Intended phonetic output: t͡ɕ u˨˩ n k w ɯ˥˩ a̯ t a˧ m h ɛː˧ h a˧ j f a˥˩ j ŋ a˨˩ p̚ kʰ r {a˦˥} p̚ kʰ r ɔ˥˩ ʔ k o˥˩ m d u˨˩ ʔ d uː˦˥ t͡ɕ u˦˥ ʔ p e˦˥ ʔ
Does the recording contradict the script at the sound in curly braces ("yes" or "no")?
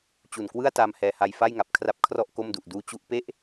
no